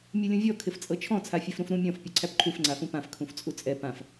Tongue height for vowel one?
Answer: high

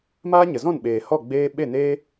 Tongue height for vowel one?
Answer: low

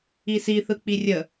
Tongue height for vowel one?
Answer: high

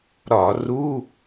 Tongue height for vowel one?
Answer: low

